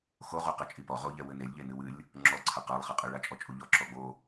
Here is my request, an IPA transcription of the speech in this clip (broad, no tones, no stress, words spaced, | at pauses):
xo ʁuqɘt͡ʃʼipɔ ʁoʎɛ wɘnelʲʎe nɨwɨlʲ | ŋ͡ǁɔǀʰɐ qalˠχɘqʼɨ ɭat͡ʃʼɔt͡ʃʼuʎɔ ǁɔɡ͡bo